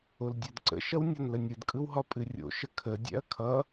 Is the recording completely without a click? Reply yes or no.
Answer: no